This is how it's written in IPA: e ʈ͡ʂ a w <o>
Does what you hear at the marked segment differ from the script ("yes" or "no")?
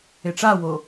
no